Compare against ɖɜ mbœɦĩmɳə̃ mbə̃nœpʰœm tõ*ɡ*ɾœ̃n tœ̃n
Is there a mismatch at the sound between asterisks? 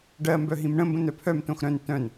yes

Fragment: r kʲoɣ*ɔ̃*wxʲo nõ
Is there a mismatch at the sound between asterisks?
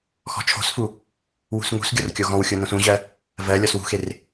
no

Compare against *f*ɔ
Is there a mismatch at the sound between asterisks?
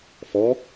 no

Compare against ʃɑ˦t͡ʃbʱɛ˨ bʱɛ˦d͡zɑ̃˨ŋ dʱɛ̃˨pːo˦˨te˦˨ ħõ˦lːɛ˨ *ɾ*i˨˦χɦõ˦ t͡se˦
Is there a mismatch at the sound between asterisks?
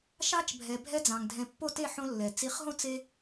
yes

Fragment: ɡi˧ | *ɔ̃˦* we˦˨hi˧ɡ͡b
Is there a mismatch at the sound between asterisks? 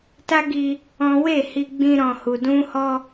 no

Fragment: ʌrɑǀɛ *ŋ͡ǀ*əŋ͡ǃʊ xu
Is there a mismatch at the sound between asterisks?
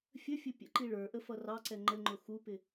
yes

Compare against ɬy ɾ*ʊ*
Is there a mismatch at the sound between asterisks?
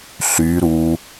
yes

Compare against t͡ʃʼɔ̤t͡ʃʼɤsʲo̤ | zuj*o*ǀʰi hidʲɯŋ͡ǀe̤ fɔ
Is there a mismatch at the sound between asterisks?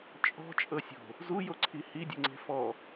no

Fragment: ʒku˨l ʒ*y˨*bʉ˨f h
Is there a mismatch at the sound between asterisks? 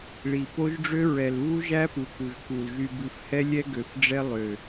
no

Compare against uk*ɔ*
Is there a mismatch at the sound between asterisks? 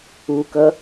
yes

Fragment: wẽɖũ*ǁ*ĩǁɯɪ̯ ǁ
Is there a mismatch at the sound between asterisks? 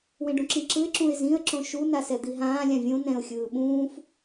no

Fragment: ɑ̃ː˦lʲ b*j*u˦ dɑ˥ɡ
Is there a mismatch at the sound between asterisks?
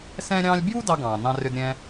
no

